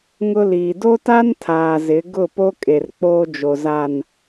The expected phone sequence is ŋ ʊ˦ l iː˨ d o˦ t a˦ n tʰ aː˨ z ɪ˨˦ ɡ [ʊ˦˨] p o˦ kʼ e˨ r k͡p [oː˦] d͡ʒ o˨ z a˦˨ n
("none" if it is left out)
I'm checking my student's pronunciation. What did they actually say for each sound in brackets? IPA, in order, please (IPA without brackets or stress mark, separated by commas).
ʊ˦˨, oː˦